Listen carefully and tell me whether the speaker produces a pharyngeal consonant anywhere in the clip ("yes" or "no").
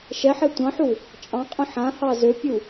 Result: yes